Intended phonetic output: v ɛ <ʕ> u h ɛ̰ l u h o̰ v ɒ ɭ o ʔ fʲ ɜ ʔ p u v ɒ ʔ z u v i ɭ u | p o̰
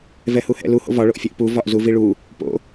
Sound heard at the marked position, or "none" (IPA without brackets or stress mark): h